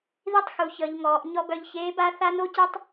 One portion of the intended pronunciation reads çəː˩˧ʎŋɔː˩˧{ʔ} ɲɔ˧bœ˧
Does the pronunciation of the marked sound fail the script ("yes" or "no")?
no